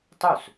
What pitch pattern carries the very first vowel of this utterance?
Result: falling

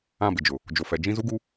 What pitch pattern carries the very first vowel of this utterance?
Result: falling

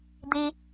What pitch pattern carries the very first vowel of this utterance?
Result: low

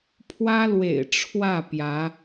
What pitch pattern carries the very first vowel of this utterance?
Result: high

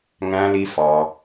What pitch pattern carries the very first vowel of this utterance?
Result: high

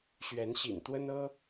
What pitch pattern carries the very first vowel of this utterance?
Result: rising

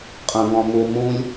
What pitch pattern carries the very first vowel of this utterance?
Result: high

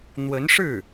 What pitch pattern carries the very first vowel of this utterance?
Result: rising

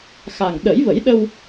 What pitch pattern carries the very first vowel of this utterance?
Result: low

